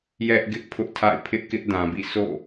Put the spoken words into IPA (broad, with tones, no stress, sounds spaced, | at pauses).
j ɛ˦ ʔ ɡ ɪ˦ ʔ pʰ ʊ˦ ʔ tʰ a̰˦˨ ɪ̯ pʰ ɪ˦ ʔ k ɪ˦ ʔ d ã˨ b ḭ˦˨ s o̰˦˨